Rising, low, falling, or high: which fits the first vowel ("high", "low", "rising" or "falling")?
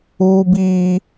high